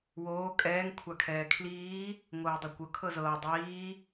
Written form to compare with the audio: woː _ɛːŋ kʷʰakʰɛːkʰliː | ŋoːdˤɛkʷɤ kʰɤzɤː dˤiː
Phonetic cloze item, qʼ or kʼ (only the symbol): kʼ